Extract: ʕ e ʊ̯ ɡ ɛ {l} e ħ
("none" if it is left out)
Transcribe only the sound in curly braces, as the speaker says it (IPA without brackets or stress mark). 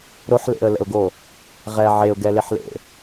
l